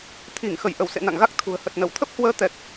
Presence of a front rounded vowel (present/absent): absent